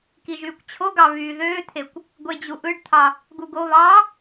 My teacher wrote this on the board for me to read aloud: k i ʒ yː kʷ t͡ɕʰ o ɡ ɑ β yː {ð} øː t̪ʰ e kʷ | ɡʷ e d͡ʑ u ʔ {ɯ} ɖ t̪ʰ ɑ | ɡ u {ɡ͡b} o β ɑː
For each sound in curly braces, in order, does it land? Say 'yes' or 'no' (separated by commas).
yes, yes, no